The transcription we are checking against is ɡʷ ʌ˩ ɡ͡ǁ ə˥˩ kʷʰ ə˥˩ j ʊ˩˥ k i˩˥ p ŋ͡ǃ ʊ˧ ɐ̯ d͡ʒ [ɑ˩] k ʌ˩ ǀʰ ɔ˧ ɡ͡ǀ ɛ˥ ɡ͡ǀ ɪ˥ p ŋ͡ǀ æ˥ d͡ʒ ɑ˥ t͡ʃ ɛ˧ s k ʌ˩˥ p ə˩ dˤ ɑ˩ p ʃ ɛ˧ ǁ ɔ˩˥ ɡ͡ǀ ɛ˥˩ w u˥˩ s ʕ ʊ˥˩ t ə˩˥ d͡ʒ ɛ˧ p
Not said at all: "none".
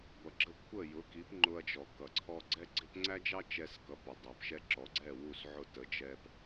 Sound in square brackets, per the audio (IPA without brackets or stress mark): ɔ˩